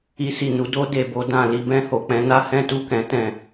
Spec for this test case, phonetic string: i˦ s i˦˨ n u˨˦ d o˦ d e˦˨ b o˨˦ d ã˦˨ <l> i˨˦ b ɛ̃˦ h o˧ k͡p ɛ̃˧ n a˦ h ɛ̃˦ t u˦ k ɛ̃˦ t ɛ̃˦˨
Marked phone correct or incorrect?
correct